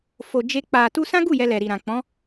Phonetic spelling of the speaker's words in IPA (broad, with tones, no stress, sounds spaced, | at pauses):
f o˨ d͡ʒ e˧ k͡p a˨ t u˧ s ã˦ ɡ u˦˨ j ɛ˧ l ɛ˨ ɾ i˨ ɾ ã˨ k͡p ɔ̃˨˦